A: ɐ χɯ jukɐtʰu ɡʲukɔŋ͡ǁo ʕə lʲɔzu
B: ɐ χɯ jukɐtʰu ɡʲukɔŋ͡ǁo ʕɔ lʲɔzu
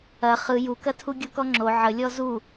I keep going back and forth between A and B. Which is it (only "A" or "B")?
A